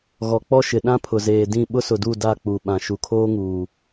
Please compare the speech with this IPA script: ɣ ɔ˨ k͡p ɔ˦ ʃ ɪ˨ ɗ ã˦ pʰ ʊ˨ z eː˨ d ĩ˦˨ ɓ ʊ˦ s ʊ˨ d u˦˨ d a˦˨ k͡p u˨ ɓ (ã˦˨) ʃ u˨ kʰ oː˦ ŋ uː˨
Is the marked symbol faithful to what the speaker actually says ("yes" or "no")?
no